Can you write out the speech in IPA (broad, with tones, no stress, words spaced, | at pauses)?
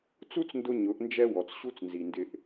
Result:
t͡su˦t͡sndʊ˧ ɲʊ˨˦ʔnd͡ʒɛ˦ wɔ˨t͡sɕu˦t͡snzi˨ndɪ˧ʔ